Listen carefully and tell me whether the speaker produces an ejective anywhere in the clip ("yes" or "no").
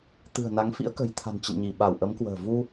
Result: no